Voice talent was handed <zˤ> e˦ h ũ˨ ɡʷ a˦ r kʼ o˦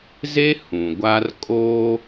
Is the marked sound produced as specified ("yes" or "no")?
no